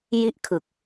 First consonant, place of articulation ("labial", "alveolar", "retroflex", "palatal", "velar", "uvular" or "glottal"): palatal